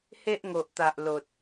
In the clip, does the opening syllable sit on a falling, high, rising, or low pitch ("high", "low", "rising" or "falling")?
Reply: high